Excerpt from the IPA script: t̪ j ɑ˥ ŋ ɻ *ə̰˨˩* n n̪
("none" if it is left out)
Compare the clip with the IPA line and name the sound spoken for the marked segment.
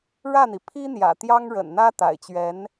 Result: ə̰˨˩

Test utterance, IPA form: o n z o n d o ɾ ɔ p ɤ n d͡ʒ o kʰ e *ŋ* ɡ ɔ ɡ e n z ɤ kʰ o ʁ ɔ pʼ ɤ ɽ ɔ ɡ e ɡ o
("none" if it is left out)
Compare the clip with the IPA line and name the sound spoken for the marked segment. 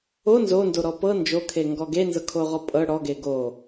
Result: ŋ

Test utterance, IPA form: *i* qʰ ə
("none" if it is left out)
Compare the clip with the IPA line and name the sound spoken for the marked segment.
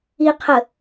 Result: i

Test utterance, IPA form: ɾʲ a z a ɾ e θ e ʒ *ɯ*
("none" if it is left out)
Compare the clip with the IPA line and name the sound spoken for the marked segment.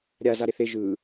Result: ɯ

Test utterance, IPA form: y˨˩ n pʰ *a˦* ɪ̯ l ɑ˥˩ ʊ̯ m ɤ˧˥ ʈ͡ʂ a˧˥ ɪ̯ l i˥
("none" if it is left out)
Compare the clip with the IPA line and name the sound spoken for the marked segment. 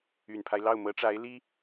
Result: a˦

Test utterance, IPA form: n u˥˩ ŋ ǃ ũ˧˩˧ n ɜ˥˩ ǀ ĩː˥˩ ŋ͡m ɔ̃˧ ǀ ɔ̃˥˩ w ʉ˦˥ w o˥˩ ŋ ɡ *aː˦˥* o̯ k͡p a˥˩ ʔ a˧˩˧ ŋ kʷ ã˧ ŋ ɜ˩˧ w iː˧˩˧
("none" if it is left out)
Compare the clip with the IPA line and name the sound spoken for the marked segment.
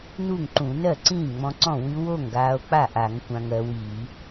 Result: aː˧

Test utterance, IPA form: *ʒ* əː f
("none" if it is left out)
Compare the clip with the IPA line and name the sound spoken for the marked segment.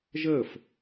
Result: ʒ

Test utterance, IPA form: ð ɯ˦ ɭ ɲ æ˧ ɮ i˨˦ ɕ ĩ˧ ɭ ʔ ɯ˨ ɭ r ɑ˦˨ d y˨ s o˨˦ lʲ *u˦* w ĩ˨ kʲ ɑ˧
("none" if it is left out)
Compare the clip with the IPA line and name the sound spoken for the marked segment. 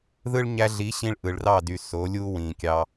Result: u˦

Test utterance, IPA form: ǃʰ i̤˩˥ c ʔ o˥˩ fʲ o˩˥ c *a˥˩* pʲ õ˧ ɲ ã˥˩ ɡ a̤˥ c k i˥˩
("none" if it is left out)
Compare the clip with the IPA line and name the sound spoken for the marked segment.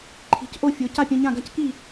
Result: a˥˩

